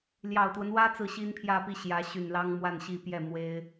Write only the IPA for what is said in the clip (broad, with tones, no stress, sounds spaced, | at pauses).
l j ɑ˨˩ ʊ̯ t̪ w ə˦ n w ä˥ t͡s ɹ̩˥˩ ɕ i˥ n pʰ j ä˥˧ p i˥˩ ɕ j ä˧˥ ɕ y˨˩ n l ɑ˥ ŋ m w a˥˧ n ɕ i˥˧ p j ɛ˥˩ m w e˥ ɪ̯